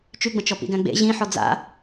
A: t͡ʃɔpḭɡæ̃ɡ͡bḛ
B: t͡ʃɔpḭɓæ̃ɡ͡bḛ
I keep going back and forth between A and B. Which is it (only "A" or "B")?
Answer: A